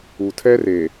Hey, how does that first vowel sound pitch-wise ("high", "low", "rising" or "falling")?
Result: low